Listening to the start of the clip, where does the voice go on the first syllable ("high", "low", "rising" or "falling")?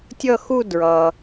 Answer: falling